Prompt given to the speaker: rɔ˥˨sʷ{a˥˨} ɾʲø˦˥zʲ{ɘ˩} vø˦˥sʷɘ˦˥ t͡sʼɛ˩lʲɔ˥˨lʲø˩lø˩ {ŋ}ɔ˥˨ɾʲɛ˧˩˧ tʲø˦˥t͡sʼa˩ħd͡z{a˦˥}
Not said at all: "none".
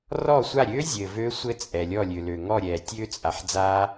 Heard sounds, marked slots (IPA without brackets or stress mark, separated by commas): a˥˨, ɘ˩, ŋ, a˦˥